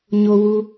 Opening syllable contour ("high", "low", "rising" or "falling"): high